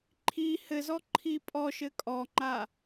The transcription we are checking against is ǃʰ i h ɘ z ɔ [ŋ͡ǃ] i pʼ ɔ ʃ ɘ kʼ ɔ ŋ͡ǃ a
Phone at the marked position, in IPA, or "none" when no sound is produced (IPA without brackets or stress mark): ǃʰ